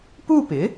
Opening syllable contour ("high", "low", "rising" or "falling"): falling